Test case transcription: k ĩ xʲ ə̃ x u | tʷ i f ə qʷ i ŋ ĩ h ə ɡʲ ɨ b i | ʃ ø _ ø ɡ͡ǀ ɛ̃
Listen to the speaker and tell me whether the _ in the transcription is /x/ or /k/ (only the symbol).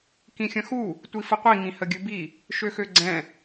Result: x